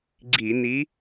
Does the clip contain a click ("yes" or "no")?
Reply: yes